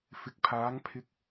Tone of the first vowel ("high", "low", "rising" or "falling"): low